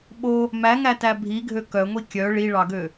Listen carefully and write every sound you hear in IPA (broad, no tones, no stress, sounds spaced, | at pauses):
ɓ o | m æ ŋ æ t æ bʱ i ɡʱ ø k œ ŋʷ i kʲ œ ɭ i ɭ ɑ ɡ ø